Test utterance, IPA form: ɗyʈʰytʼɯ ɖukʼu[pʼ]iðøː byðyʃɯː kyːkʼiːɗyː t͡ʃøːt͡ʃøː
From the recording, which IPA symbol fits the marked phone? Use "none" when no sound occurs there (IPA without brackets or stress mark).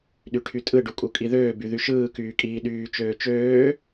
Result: kʼ